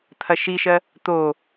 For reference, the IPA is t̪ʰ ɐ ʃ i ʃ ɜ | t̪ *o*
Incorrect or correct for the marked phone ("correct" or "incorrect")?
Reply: correct